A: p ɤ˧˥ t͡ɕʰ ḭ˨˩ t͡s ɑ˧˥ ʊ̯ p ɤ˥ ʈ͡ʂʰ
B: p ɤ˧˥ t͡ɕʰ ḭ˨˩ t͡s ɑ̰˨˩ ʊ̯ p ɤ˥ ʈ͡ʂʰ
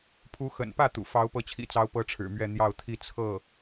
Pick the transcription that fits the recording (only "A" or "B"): A